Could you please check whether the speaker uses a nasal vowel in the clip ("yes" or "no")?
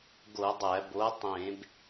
yes